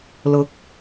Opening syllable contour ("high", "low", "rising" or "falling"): rising